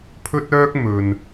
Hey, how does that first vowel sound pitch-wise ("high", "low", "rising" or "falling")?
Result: high